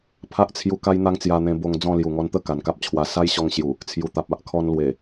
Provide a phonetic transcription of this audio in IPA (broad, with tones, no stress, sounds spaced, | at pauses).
pʰ a˦ ʔ t͡sʰ j u˧ k a˦ j n̪ a˦ ŋ t͡s j a˧ n̪ ẽ˧ b o˧ ŋ d͡z ɔ̃˥˧ l j u˨˩ ŋ ɔ˧ n t̪ ə˥˧ k a˨˩ n k a˦ p̚ t͡ɕʰ w a˧ s a˦ j ɕ ɔ˧ ŋ ɕ j u˨˩ | t͡sʰ j u˨˩ t̪ a˨ p̚ a˦ ʔ kʰ ɔ˧ n l w e˨˩